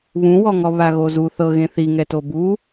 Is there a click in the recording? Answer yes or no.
no